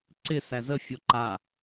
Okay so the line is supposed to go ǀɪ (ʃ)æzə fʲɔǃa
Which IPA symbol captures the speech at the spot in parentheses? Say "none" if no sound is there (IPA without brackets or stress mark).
s